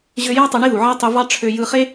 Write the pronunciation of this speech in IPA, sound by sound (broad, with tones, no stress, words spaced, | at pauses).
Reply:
ʑø˧jæ˥ tˤø˧ɳi˥ðu˩ʕæ˥ tˤy˧vɑ˥ʈ͡ʂʰø˧ jɯ˧χe˥